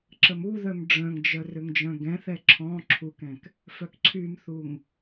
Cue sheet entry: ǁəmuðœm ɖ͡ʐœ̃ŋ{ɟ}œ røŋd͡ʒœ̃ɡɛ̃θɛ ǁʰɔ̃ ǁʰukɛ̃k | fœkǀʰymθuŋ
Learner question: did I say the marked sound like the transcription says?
no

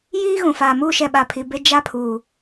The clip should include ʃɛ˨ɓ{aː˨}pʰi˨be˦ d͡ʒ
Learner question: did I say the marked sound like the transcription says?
no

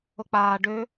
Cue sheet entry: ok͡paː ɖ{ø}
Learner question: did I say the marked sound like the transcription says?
yes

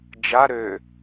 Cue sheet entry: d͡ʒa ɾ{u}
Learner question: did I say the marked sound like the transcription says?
no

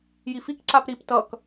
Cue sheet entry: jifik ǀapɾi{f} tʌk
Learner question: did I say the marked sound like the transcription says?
no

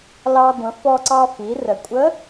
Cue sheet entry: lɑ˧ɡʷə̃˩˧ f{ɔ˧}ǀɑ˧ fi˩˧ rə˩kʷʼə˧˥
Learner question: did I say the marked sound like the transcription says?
yes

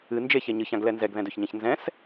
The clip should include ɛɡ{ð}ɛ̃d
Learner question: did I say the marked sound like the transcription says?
yes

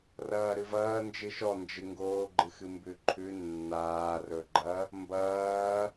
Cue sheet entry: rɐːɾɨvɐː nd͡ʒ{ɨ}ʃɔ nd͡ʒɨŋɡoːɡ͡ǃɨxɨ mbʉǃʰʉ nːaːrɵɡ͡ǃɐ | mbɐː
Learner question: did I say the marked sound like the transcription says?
yes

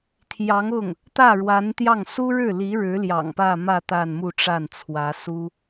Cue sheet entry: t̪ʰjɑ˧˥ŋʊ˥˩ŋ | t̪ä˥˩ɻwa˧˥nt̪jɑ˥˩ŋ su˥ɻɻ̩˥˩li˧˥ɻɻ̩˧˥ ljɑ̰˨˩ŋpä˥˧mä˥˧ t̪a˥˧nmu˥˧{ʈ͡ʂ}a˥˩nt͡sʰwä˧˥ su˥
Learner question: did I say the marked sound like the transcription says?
yes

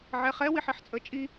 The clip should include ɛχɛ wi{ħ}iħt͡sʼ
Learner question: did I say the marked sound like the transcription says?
yes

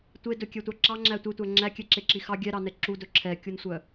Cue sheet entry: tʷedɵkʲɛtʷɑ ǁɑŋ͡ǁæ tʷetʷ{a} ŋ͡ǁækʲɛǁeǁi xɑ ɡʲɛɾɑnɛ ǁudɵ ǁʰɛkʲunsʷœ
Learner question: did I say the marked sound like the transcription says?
no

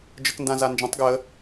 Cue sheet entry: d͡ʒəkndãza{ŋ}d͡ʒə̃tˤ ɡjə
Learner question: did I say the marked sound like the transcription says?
no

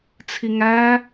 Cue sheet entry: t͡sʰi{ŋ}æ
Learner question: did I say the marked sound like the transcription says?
yes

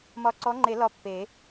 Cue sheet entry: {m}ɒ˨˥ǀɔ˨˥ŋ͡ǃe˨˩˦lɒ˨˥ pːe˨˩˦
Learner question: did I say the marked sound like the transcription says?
yes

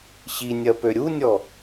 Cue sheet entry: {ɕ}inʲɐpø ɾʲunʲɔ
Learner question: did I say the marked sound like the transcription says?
yes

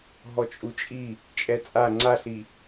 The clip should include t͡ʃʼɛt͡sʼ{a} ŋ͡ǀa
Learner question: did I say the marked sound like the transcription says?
yes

